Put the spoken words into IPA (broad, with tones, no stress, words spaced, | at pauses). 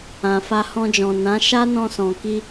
ã˨ fa˧hɔ̃˧d͡ʒɔ̃˨ nã˨˦ ʃa˦nɔ̃˧sɔ̃˨ki˧